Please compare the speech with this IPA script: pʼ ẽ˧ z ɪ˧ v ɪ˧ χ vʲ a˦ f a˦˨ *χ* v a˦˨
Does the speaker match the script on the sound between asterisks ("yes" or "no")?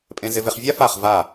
yes